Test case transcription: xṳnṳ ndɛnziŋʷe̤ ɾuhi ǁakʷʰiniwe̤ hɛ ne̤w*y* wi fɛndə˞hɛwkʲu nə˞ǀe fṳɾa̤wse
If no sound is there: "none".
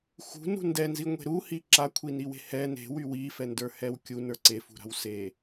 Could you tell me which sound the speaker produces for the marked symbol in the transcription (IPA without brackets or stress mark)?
y